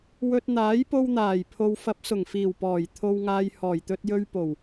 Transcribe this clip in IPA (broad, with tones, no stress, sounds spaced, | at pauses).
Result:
w ɵ˧ t̚ n̪ aː˨˥ j p o˧ w n̪ aː˨˩ j pʰ o˨ w f ɐ˨˥ p̚ s ʊ˨˩ ŋ f iː˨˩ w p ɔː˨˩ j t̪ʰ o˧ w ŋ aː˧ j h ɔː˨˩ j t̪ ɵ˧ t̚ j ɵ˧ ɥ p o˨˩ w